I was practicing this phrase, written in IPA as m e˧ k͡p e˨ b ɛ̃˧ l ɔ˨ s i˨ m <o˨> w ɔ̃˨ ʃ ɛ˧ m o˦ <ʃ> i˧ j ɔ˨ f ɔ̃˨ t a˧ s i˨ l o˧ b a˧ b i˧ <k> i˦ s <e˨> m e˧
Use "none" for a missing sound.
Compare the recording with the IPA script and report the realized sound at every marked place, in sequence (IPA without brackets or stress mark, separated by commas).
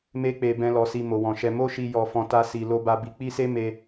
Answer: o˨, ʃ, k͡p, e˦